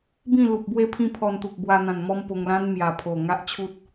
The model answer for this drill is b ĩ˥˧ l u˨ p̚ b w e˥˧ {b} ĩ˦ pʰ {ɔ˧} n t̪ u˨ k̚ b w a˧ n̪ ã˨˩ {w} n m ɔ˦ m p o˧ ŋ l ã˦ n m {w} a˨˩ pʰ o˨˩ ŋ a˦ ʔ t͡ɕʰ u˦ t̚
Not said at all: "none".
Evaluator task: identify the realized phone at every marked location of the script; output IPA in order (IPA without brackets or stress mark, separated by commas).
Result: pʰ, ɔ˧, none, j